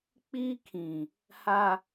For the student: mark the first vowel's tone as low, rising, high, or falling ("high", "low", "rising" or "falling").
high